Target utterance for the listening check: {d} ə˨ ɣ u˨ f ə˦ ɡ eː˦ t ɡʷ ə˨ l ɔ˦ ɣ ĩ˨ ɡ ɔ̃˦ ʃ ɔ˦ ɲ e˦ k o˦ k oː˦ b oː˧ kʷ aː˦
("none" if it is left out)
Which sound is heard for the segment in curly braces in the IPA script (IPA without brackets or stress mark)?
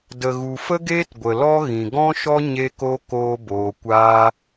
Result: d